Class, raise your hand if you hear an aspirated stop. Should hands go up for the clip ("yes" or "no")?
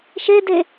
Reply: no